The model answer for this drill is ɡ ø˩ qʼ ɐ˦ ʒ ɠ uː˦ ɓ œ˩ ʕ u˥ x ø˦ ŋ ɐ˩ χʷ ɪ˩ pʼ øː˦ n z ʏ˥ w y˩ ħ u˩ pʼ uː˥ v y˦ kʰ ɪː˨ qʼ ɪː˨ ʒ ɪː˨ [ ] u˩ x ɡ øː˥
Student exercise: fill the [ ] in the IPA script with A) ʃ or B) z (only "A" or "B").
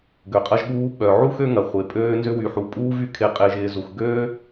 B